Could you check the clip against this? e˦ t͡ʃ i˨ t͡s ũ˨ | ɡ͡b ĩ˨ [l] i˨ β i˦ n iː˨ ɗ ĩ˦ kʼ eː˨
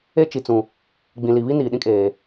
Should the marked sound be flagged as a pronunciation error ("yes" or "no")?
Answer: no